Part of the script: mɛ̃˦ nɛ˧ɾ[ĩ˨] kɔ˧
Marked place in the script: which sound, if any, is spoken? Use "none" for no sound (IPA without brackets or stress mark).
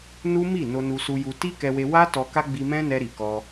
i˨